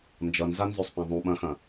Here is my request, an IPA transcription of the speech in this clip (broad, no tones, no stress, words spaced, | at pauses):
nd͡ʒʌnzanzøsˤpã ðˤũɓɐ̃xɐ̃